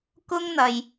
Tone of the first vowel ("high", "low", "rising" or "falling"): high